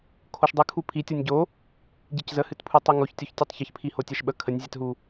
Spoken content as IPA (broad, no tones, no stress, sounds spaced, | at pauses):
kʰ o ʃ dˤ ɨ kʰ u pʰ i tʲ o nʲ ɟ o | ɟ i c z ə h ɨ t pʰ u tˤ i ŋ o ç tʲ o ç tʲ u tˤ ç ə ç pʰ i h o tʲ ɛ ʃ ɓ ə kʰ ə nʲ zʲ ɛ t ɦ u